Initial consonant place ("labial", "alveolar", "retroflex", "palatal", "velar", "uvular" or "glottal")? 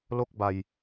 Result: alveolar